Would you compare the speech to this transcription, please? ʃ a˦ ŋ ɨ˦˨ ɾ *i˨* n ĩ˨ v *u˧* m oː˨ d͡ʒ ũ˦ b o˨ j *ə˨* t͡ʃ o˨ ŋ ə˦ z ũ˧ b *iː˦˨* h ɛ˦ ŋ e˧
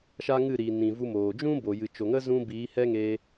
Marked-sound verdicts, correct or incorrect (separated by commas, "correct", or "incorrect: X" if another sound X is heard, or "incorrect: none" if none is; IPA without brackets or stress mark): correct, correct, incorrect: ɨ˨, incorrect: iː˨˦